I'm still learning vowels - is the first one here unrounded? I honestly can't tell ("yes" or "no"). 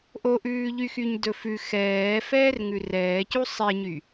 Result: no